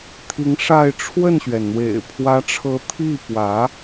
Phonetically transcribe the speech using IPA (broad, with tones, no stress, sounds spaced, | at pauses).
t̪ʰ i˧˥ ŋ ʂ a˥˧ ɪ̯ ʈ͡ʂʰ w ə˥˩ n ɕ ɥ ɛ˩ n n̪ w ḛ˨˩ ɪ̯ pʰ w ä˧˥ ʈ͡ʂʰ ɤ˧˥ t̪ʰ i˥˩ p w ä˧˥